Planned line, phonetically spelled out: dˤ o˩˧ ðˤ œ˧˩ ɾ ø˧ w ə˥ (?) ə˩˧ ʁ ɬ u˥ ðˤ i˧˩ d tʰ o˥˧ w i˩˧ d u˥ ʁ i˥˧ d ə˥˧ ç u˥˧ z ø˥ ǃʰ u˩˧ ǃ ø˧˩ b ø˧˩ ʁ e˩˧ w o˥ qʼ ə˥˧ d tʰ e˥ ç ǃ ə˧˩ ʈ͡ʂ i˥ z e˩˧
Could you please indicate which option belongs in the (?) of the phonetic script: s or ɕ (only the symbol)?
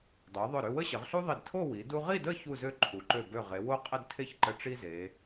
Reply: ɕ